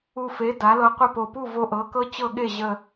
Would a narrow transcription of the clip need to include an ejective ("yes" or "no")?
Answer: no